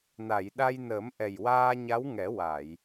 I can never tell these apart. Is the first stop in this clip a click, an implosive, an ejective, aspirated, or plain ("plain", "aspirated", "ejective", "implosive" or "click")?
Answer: implosive